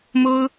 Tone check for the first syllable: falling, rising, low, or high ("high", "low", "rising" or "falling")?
high